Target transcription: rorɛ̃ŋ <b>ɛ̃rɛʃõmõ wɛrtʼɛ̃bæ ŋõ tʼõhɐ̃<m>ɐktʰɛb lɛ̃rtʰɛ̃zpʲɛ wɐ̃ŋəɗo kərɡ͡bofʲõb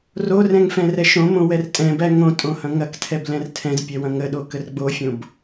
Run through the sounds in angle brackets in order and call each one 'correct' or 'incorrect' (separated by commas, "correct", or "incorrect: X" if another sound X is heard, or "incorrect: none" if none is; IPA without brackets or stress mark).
incorrect: f, incorrect: ŋ